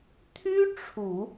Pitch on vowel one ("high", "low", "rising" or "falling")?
high